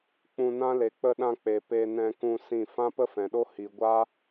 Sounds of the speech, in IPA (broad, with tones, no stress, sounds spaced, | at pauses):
k͡p ũ˧ n ã˦ l e˨ k͡p ə˧ ɗ ã˧ k͡p e˨ p e˧ n ɛ̃˧ k ũ˧ s ĩ˦˨ f ã˦ p ə˦ f ɛ̃˨ ɗ o˦ h i˨ ɡʷ a˦